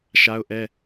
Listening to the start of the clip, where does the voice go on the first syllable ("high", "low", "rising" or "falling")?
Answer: high